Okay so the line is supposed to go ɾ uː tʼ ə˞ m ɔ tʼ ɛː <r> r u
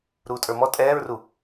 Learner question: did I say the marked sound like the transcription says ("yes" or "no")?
no